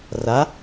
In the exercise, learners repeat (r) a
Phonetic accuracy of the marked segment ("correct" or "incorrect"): correct